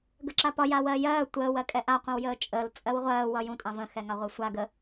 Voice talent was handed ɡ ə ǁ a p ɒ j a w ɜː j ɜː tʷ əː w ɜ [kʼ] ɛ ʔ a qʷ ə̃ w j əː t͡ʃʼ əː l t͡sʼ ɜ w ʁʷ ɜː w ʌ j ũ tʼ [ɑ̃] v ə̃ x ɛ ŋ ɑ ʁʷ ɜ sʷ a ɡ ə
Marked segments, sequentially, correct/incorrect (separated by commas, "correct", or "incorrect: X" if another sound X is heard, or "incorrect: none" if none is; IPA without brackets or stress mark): correct, correct